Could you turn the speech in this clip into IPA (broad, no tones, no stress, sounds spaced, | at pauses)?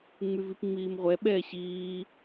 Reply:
ŋ͡m y v i p ŋ͡m iː m ʁʷ ɛ ɓ ɛː ɕ iː